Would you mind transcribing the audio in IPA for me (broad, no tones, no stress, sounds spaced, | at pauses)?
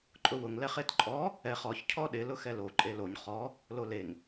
ǃʼ ʊ w ʊ ŋ l ɛ χ e t ǃʼ ɔ | ɛ χ ɔ ç cʰ ɔ ɗ ɪ l ʊ x ɛ l o ǃʼ e l o ɲ χ ɔ | l o l e ŋ